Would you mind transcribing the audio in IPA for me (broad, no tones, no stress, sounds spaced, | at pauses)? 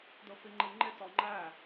d ʊ f i ŋ͡ǃ i ŋ͡ǃ ɪ t ɔ ŋ͡ǃ æ